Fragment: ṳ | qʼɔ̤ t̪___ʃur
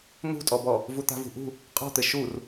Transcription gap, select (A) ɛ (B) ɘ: B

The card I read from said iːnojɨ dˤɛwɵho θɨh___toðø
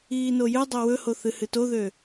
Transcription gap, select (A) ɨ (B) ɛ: A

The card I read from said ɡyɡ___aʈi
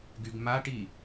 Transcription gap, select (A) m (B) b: A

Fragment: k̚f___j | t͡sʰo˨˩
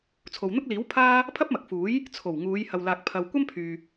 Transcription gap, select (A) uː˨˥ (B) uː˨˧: A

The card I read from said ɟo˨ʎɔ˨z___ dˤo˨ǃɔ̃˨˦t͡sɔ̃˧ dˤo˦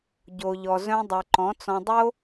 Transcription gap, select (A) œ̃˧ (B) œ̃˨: A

